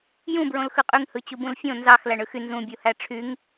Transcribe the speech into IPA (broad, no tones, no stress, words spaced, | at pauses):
jũ bɹõlxɯqʼyŋ hɯt͡ɕubũlfʲõ nzɑx læɳɯxy nzũ bʲuhæʈ͡ʂʰyŋ